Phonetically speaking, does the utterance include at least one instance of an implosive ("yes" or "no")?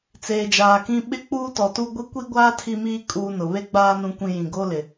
yes